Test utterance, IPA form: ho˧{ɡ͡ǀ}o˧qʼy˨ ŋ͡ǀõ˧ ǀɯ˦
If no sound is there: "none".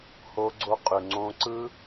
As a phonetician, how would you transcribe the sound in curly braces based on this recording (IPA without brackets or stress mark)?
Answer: ɡ͡ǀ